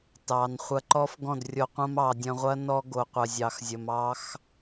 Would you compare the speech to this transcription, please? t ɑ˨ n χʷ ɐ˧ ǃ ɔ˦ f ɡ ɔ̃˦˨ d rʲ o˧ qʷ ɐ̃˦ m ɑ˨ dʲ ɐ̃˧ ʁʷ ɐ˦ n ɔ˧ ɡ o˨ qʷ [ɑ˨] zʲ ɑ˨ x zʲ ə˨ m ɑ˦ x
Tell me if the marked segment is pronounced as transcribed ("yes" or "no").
no